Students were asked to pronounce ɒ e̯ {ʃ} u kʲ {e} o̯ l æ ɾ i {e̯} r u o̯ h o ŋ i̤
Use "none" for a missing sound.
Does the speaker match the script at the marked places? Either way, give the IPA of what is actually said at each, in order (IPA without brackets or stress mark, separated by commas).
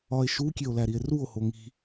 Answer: ʃ, e, e̯